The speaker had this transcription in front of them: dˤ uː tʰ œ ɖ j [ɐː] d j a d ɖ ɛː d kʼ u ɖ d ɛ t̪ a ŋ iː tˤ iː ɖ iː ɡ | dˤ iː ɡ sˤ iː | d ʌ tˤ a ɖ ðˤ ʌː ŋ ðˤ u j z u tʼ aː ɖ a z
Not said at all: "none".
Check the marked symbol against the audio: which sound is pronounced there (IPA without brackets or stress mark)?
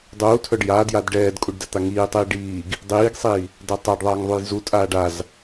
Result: aː